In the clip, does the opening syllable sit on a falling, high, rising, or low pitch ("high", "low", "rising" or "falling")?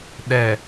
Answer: low